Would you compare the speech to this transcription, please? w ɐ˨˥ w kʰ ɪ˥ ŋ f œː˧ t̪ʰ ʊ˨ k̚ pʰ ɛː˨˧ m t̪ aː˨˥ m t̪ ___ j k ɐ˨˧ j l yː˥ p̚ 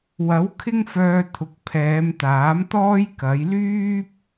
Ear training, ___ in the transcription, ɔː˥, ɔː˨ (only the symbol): ɔː˥